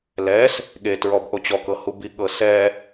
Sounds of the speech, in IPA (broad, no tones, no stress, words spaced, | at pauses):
lɛs | ɠe tɹɔbʔot͡ɕɔ kɤhubi ɠɤsɛ